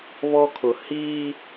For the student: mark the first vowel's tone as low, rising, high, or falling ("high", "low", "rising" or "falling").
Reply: high